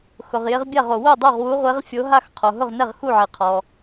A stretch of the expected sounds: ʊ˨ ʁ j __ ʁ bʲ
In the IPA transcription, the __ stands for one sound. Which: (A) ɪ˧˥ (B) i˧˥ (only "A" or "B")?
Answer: A